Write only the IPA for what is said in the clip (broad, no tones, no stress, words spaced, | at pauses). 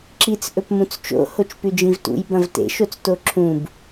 ǁit͡s ʔɵpmũt͡st͡ʃo̰ hot͡ʃpʉd͡ʒĩvtṵj bɐ̃vtḛ ʃot͡stoǁʰũb